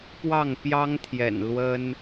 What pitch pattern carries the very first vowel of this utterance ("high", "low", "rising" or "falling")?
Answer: falling